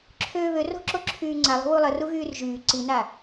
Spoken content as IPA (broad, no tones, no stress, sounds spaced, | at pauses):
ǁʰ øː β ø r o̤ ǁ o ǁʰ yː ŋ͡ǀ a lˠ o̤ w u lˠ ə r u ɣ yː r ʒ yː ǀ i n a